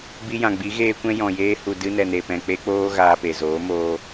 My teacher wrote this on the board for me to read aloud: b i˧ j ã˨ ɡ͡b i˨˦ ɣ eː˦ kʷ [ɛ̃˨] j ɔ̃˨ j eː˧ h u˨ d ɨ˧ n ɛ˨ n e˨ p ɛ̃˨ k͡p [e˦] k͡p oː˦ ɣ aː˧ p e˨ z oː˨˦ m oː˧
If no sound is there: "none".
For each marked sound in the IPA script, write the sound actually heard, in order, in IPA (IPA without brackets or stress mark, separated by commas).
ɛ̃˦, e˦